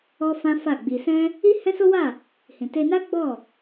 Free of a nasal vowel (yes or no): no